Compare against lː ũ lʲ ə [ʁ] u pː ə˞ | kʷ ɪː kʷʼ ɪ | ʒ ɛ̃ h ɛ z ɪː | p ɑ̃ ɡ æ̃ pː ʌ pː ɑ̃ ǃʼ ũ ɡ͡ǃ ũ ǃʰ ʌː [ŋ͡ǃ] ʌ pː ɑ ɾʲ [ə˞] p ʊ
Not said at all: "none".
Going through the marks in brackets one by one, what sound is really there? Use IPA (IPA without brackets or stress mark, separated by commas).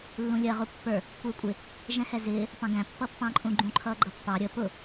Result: ʁ, ɡ͡ǃ, ə